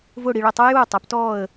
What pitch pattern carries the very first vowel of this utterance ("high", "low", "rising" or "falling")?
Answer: falling